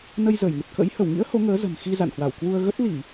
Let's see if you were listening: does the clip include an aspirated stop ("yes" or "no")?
no